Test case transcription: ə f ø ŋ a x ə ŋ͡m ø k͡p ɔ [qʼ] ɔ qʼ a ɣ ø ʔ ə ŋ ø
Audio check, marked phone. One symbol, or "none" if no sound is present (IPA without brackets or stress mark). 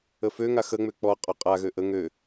qʼ